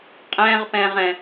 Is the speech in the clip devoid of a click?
yes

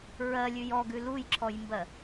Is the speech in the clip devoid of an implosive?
yes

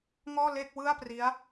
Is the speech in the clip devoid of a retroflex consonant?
yes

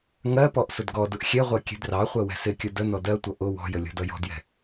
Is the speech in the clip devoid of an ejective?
yes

